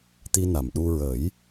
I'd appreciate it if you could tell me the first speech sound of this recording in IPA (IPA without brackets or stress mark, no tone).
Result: t̪